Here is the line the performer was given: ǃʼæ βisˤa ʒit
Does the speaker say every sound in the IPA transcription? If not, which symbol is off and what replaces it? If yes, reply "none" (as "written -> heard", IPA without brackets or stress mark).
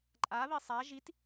æ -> a